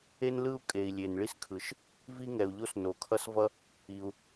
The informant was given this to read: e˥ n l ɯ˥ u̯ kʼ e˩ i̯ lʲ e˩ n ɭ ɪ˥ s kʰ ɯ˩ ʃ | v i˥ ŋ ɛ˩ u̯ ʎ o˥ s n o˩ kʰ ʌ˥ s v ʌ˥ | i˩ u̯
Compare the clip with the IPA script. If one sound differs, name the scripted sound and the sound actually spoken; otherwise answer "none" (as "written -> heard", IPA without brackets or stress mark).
ɪ˥ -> i˥